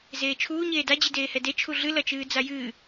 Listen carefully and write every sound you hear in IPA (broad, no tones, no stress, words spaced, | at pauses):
zeːt͡ʃʰuː ɲeːda d͡ʑideːhɛde t͡ʃʰuɮɨ lɐt͡ʃɨːd͡zajɨː